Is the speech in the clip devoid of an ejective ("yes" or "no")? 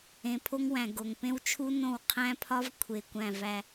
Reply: yes